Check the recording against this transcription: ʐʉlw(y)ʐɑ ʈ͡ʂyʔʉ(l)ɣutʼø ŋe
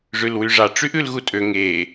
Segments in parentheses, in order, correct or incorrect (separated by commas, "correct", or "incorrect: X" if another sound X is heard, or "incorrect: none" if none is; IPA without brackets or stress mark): correct, correct